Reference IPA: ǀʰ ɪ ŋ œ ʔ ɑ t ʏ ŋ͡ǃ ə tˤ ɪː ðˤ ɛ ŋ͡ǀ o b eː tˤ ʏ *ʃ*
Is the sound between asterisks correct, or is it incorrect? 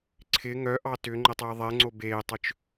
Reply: incorrect